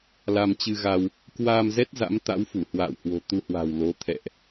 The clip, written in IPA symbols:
la˧mt͡ɕɨ˧ɣa˧w | kwaː˧mzɛ˦˥t̚ za̰˧˥mt̪a̰˧˥wfu˧˩ hwa̰ː˧˨whwo̤˨˩ t̪u˧hwa̤˨˩wlo˨˦ t̪ʰɛ̰˧˨ʔ

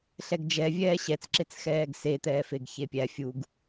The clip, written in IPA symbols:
ɬɛɡd͡ʒɛvʲɛː ɕɛt͡sǁet͡sxɛːɡ se t̪ɛːfeɡçepʲæ fʲuɡ

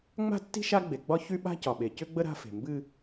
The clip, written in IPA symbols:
ŋ͡ma̤˦tːi̤˦ ʃa˦ɡ͡be˨ɡ͡bɒ˦ çy˦ɓa̤˦ cɒ˨ɓe˨cʏ˦ɡ͡bə˦ ɾa̤˦fe̤˨ mbɨ˦

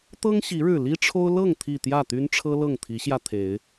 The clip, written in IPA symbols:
t̪ɤ˦ŋɕi˨˦ɻɻ̩˨˩ li˦ʈ͡ʂʰo˦ʊ̯ lɤ˥˨ŋt̪ʰi˨˩ t̪jä˥˨t̪y˦nʈ͡ʂʰɤ˦lɤ˥˨ŋ t̪ʰi˨˦ɕjä˧t̪ʰe˨˦ɪ̯

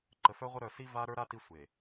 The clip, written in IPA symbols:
ǃə˨fœ˦ʁʷə˦ ɾœ˨si˦ va˦ ɾə˞˦ɾa˦ ti˦sʷe˨

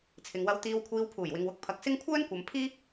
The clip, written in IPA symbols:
t͡sʰɪ˨ŋwɐ˧wt̪iː˧wkʷʰiː˧w pʰuː˨˩jwɪ˨ŋwʊ˨˥k̚ pʰɐ˨k̚sɪ˥ŋ kʷʰœː˥nkʷɐ˨mpʰiː˥

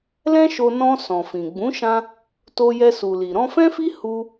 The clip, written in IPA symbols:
lɛ̃˦ʃo˧ nɔ̃˧ sɔ̃˨fĩ˨ ɡ͡bũ˨˦ʃã˧ | to˧jɛ˧su˨li˨ ɾɔ̃˧fɛ̃˦fi˦ hu˧

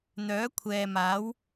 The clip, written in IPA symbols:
n̪œː˨˥kʷʰɛː˨maː˨˥w

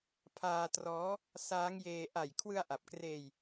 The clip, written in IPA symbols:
pʰaː˧trɔː˦˥ | saː˦˥ŋjeː˧ ʔa˨˩j kʰwɯ˧a̯ʔa˨˩p̚kreː˧j

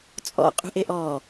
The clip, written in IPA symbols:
t͡sʼɔ̰qʼṳʔeʔ ɔ

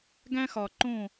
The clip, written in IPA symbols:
ɡæ̃˥xɒ˨˩ ǃõ˥˨

